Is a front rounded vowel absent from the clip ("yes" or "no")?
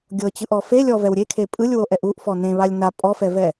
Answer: yes